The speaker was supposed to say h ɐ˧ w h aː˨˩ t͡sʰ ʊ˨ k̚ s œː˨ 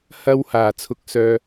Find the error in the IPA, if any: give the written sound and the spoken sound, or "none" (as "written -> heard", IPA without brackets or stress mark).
none